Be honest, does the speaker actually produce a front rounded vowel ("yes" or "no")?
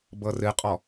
no